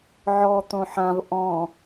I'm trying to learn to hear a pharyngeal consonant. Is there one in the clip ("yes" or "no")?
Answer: yes